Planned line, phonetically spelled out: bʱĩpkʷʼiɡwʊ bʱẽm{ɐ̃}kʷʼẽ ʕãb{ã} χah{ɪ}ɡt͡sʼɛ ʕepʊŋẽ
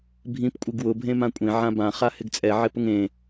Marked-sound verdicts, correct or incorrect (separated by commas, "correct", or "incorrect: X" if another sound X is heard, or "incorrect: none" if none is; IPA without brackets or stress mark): incorrect: ã, correct, correct